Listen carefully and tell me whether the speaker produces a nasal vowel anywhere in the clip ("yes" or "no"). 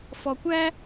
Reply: no